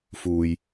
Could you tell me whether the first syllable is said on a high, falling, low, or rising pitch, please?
low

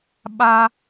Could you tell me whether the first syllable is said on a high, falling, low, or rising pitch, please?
high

